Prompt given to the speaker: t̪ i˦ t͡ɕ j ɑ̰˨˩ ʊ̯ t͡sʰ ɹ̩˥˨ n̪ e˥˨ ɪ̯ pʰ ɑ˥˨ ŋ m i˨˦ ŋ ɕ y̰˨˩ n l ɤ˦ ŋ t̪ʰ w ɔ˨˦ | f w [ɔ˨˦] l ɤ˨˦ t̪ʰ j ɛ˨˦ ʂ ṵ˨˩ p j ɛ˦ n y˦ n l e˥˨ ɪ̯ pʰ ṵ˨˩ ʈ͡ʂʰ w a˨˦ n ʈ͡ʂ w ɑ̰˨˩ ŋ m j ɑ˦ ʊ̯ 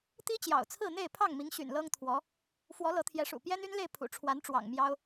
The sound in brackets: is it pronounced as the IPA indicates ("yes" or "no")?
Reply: yes